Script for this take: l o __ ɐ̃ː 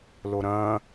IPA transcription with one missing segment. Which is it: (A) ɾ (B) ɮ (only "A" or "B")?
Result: A